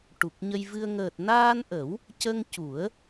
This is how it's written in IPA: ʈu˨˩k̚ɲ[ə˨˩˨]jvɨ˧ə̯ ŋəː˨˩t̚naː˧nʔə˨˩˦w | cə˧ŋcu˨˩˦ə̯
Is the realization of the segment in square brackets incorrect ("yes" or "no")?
yes